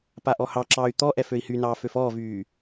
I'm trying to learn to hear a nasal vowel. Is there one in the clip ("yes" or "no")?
no